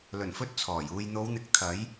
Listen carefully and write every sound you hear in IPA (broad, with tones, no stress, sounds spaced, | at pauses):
l ɵ˨˩ n f ɵ˧ t̚ t͡sʰ ɔː˨˩ j uː˨ j n̪ o˨˧ w n̪ ɪ˨˥ k̚ t̪ʰ ɐ˨˥ j